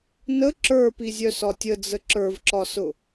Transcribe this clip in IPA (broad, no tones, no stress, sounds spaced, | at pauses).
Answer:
n ə ǁ ə˞ p i zʲ œ s ɒ tʲ ə d͡z ə ǁ ə˞ v ǁ ɒ s ʊ